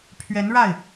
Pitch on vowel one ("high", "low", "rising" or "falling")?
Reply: rising